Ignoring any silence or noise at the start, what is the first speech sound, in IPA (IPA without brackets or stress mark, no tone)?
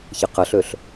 ç